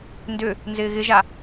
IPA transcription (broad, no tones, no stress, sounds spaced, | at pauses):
n d ʏ | n z ɪː ɣ ɪ ʒ a